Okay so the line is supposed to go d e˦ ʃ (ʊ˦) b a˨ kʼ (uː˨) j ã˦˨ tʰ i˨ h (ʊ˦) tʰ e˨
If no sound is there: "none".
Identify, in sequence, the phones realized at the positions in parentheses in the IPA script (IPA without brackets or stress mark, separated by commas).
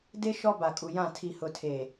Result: ɔ˦, u˨, ʊ˨